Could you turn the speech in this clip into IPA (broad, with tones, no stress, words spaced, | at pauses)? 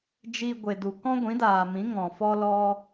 d͡ʒi˧ɡʷe˨du˨ kɔ̃˦ɡʷĩ˨˦daː˨mĩ˨˦ ŋɔ̃˨ fɔ˦lɔ˦